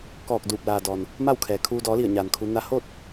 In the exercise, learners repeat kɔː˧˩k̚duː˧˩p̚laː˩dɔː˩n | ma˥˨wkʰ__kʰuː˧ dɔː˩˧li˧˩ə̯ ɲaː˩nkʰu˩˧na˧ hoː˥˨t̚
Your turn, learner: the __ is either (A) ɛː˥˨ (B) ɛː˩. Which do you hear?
B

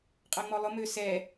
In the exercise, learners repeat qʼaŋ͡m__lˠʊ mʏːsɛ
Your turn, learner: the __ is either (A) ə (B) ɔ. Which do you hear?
B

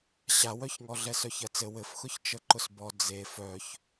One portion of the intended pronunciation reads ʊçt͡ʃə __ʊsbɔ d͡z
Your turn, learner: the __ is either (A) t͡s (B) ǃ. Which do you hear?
B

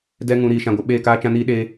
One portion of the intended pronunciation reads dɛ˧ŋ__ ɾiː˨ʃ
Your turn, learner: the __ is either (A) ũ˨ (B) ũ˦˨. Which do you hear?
A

